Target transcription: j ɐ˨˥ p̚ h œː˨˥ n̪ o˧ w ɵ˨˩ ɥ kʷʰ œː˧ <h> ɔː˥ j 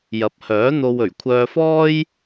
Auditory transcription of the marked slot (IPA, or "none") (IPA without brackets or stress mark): f